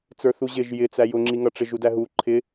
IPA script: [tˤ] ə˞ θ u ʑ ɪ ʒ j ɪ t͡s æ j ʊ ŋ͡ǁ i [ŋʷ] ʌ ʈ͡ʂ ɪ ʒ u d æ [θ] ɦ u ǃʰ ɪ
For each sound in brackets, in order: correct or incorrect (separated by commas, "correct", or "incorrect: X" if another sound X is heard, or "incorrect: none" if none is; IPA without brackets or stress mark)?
incorrect: t͡s, incorrect: ŋ, incorrect: none